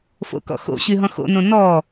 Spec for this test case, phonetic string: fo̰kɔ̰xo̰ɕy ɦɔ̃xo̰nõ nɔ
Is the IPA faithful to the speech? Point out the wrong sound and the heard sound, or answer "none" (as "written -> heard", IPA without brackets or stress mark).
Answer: none